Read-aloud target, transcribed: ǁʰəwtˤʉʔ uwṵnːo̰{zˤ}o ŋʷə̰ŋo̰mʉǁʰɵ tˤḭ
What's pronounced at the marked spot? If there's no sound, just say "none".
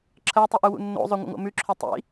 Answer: zˤ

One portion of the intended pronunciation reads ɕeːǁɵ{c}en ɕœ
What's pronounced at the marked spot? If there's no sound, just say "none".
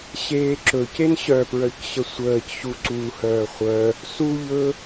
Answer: c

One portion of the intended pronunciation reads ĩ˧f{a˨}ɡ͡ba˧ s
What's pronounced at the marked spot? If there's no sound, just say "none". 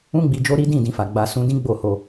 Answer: a˨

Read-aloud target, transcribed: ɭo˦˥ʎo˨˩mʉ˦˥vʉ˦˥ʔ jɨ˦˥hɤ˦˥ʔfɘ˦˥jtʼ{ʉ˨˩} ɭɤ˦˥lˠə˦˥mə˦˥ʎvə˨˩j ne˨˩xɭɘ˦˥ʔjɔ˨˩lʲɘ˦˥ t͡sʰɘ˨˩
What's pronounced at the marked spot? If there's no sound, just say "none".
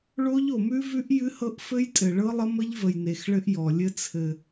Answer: ɘ˨˩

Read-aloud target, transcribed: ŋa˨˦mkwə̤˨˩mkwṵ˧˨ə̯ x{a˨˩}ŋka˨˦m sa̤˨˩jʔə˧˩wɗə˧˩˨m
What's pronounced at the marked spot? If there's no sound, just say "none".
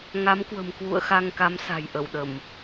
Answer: a˧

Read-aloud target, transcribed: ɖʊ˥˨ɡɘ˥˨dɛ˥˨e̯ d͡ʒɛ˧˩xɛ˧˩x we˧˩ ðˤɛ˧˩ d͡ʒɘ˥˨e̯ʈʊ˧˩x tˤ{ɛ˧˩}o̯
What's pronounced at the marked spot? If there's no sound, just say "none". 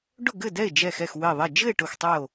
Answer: ɛ˥˨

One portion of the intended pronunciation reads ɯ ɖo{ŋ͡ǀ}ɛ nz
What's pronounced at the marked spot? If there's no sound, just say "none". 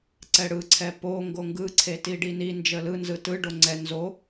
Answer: ŋ͡ǀ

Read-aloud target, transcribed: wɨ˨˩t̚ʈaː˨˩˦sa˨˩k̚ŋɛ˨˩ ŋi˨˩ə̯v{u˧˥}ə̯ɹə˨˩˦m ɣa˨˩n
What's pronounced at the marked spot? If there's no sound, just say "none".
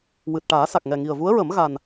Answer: u˧˥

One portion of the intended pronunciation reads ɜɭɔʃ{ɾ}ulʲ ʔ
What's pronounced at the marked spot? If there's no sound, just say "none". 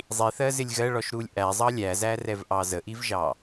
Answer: ɾ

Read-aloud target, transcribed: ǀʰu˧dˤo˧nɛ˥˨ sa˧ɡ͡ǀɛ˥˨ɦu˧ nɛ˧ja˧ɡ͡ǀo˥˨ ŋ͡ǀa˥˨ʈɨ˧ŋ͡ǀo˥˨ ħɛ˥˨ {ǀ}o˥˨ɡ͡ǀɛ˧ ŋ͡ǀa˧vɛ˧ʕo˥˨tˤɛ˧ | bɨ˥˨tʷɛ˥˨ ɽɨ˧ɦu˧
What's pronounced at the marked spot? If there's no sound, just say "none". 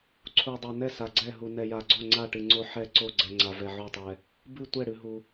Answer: ǀ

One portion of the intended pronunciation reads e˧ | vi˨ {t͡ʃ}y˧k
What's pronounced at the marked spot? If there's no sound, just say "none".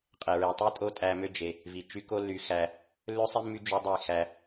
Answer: t͡ʃ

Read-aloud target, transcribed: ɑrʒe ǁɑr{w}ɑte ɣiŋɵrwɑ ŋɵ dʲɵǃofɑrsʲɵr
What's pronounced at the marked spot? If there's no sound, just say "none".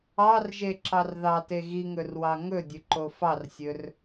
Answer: ð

